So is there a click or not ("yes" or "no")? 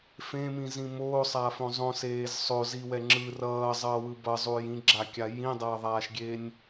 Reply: yes